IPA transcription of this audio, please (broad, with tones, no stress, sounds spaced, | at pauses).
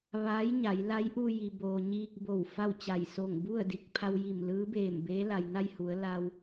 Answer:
ʋ aː˧˥ j ɲ a˩˧ j l a˧˥ j ʔ u˧ j i˩ b oː˩ ɲ iː˧ k̚ b o˧˩ w f a˥˨ w t͡ɕ a˧˩ j s o˧˩ ŋ b u˥˨ ə̯ d i˧˩ k̚ pʰ a˧ w j i˧˩ m l ɯː˧˥ b eː˧˩ m b eː˧˥ l a˩ j n a˥˨ j h u˩˧ ə̯ l a˧ w